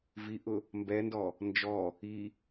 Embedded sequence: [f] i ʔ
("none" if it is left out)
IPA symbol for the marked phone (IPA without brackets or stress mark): v